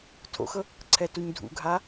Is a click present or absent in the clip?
present